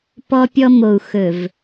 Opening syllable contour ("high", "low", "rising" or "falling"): high